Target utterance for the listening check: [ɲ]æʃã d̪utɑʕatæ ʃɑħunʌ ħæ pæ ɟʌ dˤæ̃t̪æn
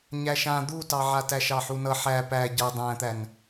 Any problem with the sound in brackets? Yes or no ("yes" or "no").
no